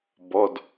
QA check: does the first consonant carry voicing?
yes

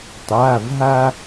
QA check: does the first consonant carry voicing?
no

